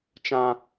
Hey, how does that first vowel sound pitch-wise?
high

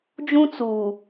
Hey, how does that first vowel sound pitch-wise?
high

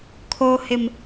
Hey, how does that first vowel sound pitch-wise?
low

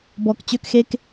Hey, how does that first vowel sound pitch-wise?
low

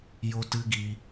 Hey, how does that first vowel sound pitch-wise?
high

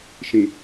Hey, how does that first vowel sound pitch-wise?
low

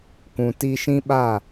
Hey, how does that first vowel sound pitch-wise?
low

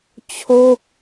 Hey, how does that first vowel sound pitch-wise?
falling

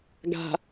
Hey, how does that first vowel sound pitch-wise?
low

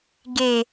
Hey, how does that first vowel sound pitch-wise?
low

